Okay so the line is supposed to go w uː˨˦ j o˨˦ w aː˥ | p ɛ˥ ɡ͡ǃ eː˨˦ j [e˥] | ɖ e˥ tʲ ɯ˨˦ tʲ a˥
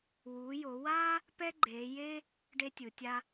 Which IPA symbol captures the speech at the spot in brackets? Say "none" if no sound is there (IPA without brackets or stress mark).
eː˥